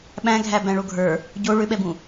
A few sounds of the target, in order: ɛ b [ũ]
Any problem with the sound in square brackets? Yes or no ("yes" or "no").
no